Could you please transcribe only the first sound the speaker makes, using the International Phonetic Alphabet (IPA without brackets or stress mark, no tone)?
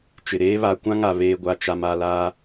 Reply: t͡ʃ